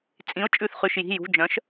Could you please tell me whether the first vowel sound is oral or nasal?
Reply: nasal